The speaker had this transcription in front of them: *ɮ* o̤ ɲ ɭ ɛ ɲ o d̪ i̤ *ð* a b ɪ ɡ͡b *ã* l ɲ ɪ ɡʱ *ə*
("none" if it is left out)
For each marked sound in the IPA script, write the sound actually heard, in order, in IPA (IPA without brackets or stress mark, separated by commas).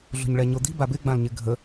ɮ, b, ã, ə